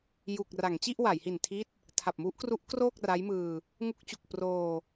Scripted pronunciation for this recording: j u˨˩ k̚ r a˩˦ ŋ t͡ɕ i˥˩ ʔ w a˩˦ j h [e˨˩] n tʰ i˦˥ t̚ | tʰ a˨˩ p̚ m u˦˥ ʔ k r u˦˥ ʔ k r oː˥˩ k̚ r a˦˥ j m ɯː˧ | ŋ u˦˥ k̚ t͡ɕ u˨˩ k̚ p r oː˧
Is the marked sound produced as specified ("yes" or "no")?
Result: no